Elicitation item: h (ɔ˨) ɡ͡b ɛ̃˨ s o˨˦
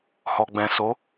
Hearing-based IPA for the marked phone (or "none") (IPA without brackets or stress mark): ɔ˨